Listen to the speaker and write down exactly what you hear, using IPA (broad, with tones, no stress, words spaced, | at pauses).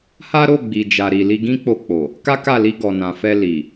ha˦ ɾo˦˨ɡ͡bi˨d͡ʒa˨ɾi˨ li˧ɡĩ˦k͡po˧ k͡po˨ | ka˦ka˦˨li˧ɡɔ˨ nã˨fɛ˧ li˨